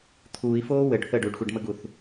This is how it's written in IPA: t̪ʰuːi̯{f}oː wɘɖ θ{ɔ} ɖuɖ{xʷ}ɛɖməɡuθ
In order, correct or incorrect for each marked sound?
correct, incorrect, correct

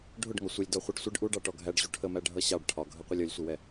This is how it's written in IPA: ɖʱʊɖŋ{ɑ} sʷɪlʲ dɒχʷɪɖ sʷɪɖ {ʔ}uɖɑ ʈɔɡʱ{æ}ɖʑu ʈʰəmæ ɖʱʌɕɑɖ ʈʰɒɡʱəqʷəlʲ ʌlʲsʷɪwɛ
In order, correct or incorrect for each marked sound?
incorrect, correct, correct

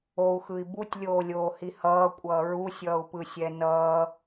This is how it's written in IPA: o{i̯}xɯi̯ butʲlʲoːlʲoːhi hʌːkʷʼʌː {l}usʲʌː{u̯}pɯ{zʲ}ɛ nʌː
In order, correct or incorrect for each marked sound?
incorrect, incorrect, correct, incorrect

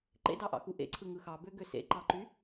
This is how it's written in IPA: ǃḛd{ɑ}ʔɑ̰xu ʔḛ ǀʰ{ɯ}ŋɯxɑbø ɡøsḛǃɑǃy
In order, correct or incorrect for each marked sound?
correct, correct

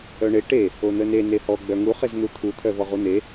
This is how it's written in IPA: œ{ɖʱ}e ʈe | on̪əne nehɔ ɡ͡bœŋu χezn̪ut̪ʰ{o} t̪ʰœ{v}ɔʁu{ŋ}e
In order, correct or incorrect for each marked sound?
incorrect, incorrect, correct, incorrect

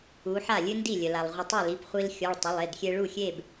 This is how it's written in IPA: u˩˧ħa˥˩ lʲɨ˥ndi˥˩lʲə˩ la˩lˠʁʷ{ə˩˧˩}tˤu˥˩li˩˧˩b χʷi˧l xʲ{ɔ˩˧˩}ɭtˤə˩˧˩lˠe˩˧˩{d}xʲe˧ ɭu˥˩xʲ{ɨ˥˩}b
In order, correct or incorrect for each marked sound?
incorrect, correct, correct, incorrect

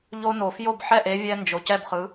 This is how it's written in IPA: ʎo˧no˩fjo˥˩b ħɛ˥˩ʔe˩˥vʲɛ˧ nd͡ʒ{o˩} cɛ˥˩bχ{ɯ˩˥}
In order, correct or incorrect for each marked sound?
correct, correct

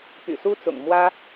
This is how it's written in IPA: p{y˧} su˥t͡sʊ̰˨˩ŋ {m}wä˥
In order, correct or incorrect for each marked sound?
incorrect, correct

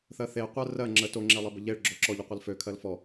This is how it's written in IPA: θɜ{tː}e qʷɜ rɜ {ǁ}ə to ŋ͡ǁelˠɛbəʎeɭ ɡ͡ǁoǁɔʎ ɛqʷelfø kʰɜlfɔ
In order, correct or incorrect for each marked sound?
incorrect, incorrect

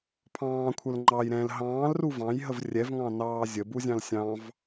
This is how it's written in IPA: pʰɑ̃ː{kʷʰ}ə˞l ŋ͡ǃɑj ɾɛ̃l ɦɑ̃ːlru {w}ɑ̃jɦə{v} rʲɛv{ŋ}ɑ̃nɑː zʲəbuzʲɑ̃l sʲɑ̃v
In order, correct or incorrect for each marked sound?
correct, incorrect, correct, correct

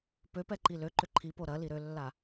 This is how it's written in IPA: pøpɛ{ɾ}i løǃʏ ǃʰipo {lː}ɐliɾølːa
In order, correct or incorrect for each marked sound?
incorrect, incorrect

